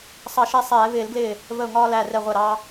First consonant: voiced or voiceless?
voiceless